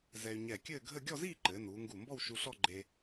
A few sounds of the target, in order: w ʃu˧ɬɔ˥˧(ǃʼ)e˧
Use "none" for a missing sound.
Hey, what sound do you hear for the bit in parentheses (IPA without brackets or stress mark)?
ɡ͡ǃ